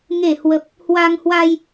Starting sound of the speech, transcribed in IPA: ŋ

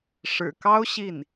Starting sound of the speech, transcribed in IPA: ʂ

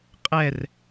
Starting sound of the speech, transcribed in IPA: qʼ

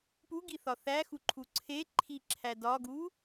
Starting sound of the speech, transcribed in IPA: p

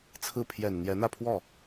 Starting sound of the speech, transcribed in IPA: t͡sʰ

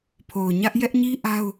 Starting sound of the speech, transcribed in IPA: pʰ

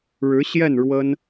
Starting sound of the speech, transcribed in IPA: ɻ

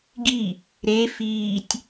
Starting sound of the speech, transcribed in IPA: ɡ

